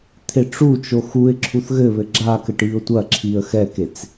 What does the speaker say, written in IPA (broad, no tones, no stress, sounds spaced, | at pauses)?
t̪ʰ e ʈ͡ʂ u t͡ʃ o x u ɪ̯ ǁʰ u θ ɣ ɘ β ɘ ɡ͡ǁ a k ɘ ʈ i ʊ̯ tʷ ɐ ǁʰ i ə̯ x ɛ k e t͡s